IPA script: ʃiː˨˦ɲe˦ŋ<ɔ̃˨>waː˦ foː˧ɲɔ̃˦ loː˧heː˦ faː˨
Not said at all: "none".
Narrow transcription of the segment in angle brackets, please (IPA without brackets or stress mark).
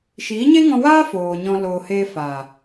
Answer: ɔ̃˧